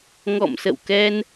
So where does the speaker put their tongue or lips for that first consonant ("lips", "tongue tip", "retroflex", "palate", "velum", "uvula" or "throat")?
velum